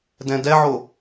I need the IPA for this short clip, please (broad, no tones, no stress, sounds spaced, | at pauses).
d ɛ̃ d ɛ ʕ o